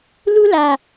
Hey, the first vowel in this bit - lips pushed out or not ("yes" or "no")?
yes